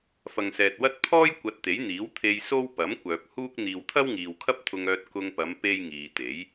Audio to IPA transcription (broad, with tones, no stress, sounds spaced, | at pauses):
f ɐ˨ ŋ s ɛː˨ t̚ w ɐ˥ t̚ pʰ ɔː˥ j kʷ ɐ˧ t̚ t̪ e˨˥ j n̪ iː˨˥ w t̪ʰ e˧ j s o˥ w p ɐ˨˥ m kʷ œː˨ p̚ h uː˥ k̚ n̪ iː˨ w t̪ʰ ɐ˥ w ŋ iː˨ w kʰ ɐ˥ p̚ t̪ʰ ʊ˧ ŋ œː˧ t̚ k ʊ˧ ŋ p ɐ˨˧ m p e˥ j ŋ iː˨ t̪ e˨˥ j